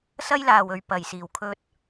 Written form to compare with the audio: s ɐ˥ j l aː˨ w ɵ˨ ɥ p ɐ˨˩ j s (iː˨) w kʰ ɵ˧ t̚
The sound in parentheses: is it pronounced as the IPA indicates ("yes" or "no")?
no